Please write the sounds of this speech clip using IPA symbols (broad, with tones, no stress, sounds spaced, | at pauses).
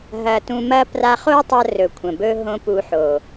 ɦ ɐ˧ t ũ˧ m ɐ˦ p r a˧ χ o˦ tˤ ɐ˧ r ɵ˨ kʷʰ ɐ̃˨ b ɵ˧ ɦ õ˧ p u˧ ħ o˨